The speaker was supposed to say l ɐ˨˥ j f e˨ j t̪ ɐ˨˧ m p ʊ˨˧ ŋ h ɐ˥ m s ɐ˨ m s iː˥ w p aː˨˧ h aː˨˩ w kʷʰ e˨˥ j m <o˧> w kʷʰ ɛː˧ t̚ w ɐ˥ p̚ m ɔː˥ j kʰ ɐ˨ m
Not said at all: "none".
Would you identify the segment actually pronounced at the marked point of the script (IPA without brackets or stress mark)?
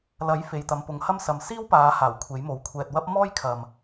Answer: o˨˥